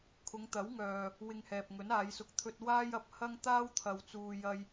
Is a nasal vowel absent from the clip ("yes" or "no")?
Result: yes